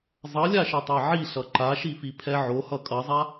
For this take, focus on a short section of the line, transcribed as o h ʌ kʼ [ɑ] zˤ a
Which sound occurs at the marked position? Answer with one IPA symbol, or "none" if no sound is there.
ʌ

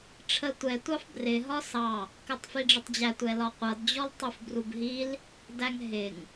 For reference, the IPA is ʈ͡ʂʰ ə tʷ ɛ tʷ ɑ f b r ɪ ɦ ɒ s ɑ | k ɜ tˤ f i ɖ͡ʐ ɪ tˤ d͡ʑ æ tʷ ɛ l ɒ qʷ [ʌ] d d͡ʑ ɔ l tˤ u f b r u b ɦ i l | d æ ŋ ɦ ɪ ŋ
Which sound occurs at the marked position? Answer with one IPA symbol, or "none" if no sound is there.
ʌ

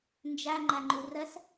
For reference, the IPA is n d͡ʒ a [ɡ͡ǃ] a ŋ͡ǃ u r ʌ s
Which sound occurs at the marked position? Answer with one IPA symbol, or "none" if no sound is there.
ŋ͡ǃ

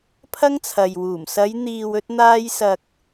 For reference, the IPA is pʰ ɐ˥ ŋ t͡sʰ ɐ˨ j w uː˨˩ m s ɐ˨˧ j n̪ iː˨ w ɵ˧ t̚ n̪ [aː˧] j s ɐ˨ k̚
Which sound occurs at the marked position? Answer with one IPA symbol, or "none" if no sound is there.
aː˧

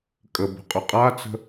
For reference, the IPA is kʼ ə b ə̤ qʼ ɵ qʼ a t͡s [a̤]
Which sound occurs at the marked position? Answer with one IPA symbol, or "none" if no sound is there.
ə̤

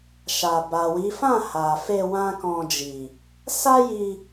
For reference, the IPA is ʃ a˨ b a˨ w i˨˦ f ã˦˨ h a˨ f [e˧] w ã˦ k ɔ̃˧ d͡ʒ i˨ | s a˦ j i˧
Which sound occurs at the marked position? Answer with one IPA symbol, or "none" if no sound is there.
e˧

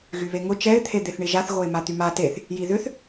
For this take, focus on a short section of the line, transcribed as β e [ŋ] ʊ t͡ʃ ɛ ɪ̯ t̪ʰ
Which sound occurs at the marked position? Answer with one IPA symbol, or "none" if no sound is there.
ŋ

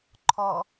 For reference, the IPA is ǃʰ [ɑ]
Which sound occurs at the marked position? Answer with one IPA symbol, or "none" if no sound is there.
ɔ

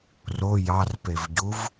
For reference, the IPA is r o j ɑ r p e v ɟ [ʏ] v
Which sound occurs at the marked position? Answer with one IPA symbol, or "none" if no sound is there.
u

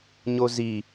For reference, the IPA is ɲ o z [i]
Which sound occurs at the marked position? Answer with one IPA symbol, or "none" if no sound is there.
i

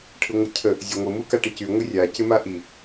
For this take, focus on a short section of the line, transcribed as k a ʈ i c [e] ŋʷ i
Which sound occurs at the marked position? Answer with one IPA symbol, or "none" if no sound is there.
y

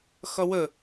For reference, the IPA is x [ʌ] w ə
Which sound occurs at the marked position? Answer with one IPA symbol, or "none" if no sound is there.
ʌ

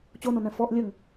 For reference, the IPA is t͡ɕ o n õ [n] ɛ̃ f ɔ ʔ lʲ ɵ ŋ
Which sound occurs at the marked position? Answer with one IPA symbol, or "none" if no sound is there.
n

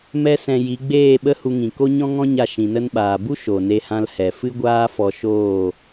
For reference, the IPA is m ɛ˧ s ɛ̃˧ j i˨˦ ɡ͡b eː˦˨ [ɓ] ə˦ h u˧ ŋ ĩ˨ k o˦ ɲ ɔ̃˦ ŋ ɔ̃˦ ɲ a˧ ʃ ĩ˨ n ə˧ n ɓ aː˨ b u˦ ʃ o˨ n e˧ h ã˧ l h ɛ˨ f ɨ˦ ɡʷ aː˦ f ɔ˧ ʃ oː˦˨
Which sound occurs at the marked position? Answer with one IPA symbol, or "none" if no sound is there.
ɓ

